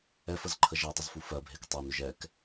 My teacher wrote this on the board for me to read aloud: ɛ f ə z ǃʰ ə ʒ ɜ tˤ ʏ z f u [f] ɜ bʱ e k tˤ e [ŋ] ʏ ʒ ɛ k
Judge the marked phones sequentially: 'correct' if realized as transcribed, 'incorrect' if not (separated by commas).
correct, incorrect